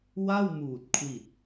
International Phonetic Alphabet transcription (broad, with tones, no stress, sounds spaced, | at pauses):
w a˥˩ w m uː˨˩ t̚ kʰ w i˨˩ t̚